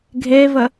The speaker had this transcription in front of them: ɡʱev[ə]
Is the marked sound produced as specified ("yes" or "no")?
yes